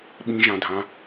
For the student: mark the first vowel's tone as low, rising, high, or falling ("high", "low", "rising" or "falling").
high